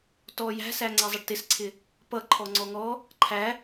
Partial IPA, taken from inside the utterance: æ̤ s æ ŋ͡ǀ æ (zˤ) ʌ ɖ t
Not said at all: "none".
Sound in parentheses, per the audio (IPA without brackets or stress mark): zˤ